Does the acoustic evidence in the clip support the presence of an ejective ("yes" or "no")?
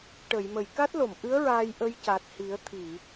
no